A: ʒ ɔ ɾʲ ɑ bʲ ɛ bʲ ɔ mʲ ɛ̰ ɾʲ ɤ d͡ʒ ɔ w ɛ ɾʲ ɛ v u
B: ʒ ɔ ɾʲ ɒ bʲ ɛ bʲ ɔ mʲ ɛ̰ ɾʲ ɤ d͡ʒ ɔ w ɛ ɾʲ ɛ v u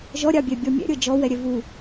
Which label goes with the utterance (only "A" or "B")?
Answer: A